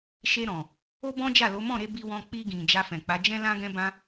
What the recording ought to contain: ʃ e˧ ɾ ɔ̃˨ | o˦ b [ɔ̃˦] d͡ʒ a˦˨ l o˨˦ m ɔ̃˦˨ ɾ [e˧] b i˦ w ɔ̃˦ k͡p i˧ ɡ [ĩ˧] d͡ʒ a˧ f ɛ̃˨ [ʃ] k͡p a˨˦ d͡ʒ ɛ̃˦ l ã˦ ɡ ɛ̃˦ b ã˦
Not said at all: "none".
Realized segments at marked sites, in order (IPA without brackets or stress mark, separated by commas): ɔ̃˦, e˧, ĩ˨, none